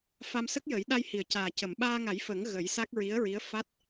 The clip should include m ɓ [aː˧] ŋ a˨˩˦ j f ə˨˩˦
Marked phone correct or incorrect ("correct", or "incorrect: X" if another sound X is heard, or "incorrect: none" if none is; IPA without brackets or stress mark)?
correct